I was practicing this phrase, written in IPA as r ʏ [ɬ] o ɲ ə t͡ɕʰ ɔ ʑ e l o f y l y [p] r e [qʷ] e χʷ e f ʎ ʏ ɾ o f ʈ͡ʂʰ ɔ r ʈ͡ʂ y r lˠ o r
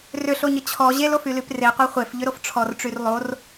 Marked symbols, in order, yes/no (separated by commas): yes, yes, yes